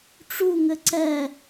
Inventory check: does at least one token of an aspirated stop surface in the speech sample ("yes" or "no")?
no